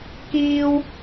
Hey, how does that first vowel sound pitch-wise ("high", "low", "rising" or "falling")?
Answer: high